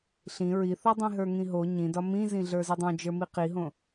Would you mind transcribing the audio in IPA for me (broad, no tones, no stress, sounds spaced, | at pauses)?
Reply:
ɬ ĩ ɹ i θ o dˤ ĩ ɦ ə˞ ŋ ĩ ɦ o ɲ ĩ d ɒ m ĩ z ĩ ɮ ə˞ z i dˤ õ d͡ʒ ə˞ m i q i ɦ õ